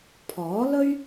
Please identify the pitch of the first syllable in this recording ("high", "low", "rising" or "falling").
rising